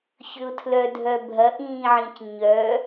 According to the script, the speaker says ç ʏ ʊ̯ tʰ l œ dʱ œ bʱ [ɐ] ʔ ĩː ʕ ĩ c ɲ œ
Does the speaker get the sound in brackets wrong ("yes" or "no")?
no